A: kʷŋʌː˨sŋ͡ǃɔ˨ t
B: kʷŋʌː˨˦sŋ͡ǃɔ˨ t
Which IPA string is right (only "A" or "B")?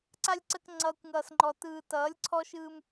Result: A